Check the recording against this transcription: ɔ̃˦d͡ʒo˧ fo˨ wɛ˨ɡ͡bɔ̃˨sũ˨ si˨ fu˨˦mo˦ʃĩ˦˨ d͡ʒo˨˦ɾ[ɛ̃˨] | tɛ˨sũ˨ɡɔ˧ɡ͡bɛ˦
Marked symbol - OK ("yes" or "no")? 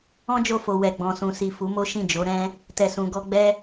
no